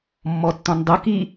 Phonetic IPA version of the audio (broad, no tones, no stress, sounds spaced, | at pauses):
mː ɔ tː ɔ̃ n dˤ u k i